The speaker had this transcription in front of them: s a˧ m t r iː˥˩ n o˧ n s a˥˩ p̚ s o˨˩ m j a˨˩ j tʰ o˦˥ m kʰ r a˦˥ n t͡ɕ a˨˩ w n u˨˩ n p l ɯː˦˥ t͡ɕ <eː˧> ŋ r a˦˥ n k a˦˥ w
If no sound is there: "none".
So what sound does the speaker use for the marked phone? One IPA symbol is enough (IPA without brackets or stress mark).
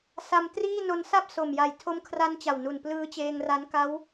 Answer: eː˧